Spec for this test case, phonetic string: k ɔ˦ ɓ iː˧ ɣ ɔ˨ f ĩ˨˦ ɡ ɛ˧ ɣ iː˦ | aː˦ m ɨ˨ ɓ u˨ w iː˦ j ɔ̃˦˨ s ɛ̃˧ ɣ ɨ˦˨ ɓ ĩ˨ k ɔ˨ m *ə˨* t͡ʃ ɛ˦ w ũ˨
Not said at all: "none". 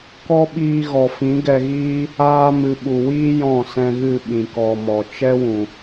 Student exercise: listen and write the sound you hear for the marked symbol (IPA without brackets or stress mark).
ɔ˨